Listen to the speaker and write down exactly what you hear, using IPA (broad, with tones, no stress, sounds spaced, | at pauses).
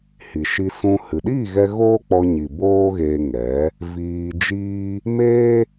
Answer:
h i˨ ʃ i˧ s ũ˧ h ɨ˨ ɗ iː˦˨ ɣ ɛ˧ ɣ oː˦ k͡p ɔ˧ ɲ i˨ b oː˦ ɣ eː˧ ŋ ɛ˨˦ | v iː˧ d͡ʒ iː˦ | m eː˦